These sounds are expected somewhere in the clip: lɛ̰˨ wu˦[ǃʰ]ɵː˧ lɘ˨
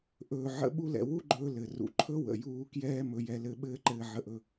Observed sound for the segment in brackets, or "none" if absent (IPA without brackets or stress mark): ɡ͡ǃ